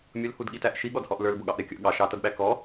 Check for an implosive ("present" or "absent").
present